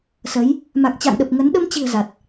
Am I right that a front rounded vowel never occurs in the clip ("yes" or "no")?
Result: yes